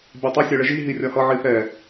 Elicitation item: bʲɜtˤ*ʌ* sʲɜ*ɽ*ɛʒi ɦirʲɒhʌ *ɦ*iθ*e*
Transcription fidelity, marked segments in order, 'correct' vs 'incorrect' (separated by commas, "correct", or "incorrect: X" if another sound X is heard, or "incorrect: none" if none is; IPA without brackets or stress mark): correct, incorrect: ɭ, incorrect: ʕ, incorrect: ɛ